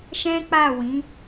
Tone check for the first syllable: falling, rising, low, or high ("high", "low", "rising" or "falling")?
high